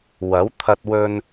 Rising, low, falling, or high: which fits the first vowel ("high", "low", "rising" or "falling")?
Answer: rising